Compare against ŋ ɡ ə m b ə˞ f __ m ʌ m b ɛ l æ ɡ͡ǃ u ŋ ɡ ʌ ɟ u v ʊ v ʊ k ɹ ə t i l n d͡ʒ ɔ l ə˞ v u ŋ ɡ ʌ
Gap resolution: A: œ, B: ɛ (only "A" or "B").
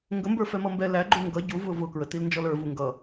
B